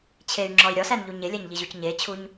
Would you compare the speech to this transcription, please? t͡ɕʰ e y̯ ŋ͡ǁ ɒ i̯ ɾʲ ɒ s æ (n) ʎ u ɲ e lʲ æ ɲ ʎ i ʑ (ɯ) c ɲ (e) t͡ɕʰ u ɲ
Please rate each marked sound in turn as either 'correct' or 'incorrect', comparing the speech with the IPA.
correct, incorrect, correct

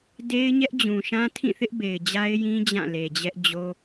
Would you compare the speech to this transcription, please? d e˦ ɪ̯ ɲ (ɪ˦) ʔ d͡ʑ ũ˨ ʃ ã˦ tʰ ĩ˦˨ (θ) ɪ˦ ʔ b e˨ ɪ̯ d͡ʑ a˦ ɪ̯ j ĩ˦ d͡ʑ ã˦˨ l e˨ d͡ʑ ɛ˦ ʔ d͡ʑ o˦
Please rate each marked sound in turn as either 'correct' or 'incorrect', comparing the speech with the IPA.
incorrect, correct

